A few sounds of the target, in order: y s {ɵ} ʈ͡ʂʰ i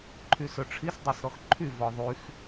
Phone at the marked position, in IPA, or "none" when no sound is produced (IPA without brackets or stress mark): ɵ